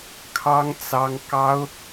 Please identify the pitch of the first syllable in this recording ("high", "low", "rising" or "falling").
high